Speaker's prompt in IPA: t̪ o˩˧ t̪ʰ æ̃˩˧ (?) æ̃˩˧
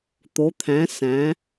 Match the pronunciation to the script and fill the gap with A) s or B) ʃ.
A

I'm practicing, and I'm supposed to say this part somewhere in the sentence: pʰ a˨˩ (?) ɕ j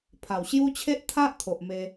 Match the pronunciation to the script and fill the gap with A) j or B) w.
B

